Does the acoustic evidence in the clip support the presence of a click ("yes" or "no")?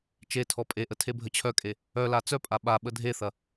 no